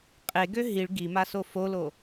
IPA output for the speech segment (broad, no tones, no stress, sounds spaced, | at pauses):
qʼ e ɡ ø ɦ i ɭ ɡ i m a s o f o l o